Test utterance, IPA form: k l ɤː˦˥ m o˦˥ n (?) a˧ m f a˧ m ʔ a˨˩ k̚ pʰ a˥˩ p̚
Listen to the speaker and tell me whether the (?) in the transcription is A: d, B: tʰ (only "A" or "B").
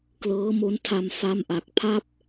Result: B